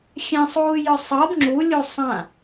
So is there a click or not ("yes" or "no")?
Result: yes